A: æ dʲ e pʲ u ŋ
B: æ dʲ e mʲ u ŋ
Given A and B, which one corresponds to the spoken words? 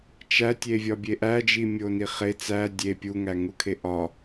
A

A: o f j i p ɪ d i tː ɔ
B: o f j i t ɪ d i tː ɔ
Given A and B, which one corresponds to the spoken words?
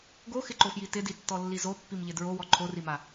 B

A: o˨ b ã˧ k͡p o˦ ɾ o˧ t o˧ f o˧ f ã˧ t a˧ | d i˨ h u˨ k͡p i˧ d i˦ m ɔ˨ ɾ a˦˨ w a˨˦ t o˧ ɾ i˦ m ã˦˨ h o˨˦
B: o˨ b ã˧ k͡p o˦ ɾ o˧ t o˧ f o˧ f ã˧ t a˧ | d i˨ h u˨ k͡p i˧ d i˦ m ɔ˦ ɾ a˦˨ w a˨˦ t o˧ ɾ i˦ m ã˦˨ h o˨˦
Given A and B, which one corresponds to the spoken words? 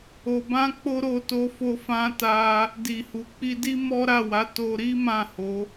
B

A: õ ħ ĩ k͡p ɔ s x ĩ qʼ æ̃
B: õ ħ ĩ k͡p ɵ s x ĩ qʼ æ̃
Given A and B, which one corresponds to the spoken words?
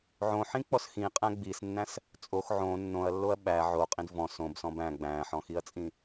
A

